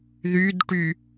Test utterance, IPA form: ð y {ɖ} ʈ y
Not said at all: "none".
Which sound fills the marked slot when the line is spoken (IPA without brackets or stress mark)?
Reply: d